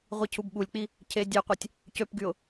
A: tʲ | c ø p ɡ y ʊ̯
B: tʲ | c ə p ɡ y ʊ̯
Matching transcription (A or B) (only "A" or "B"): A